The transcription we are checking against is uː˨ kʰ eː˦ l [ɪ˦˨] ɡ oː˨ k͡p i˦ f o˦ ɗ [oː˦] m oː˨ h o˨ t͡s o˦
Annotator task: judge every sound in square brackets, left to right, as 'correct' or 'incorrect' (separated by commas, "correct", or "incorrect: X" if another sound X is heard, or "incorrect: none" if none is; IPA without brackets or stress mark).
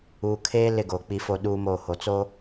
correct, incorrect: uː˦